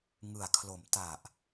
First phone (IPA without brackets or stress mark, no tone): ŋ